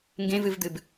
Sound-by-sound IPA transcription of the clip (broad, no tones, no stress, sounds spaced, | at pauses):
ŋ ɡ ẽ v ɨ v d̪ ɨ b